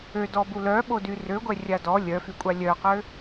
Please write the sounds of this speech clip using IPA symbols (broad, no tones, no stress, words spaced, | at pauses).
ødɔbu lœɓody røɡʷɛrʲa dɔ lʲœfykʷʼa lʲœqø